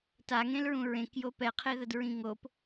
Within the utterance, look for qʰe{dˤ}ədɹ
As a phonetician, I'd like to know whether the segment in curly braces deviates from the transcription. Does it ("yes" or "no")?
yes